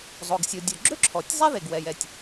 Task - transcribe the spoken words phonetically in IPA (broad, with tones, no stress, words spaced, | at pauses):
zˤo˩ɡsʲo˩dʲo˩ɡ͡ǁø˥ ǁʰɔ˩tʲ zˤɛ˥ ðe˩ɡwɛ˩jɛ˩tʲ